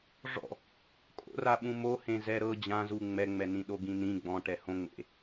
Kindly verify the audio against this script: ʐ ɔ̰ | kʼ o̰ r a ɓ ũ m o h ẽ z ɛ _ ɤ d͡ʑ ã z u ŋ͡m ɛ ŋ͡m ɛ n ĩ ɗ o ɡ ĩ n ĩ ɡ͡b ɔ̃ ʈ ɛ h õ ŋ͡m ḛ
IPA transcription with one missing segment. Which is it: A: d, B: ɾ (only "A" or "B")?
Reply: B